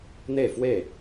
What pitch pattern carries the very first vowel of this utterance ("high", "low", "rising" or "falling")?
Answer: falling